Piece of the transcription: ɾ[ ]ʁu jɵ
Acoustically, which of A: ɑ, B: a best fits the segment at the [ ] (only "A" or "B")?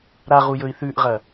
B